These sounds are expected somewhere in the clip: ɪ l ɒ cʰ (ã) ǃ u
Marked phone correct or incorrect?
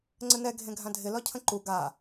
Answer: incorrect